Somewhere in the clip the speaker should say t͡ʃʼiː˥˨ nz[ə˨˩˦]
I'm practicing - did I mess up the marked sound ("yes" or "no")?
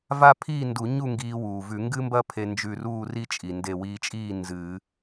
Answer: yes